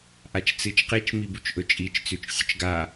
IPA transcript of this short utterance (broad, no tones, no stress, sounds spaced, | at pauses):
ʔ a t͡ʃ t͡s ɨ t͡ʃ q i t͡ʃ m i b u t͡ʃ ʔ ɵ t͡ʃʼ i t͡ʃ t͡s ʉ t͡ʃ sʲ ɵ t͡ʃ ɡ a